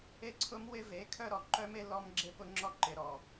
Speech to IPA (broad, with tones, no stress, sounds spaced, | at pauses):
e˦ ǀʰ ʊ˦ m w ɪ˦ v e˨˦ kʰ œ˦ ɾ ɔ˨ ǃ œ˦ m e˦ l ɔ˦ m ɡ͡ǁ e˦ p ʊ˦ ŋ͡ǁ ɔ˦ ǃ ɪ˨ ɾ ɔ˨